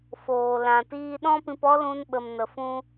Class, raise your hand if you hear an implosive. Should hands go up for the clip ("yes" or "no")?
yes